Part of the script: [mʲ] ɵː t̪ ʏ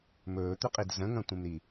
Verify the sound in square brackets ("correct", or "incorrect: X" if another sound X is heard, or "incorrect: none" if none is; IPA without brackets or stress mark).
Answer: incorrect: m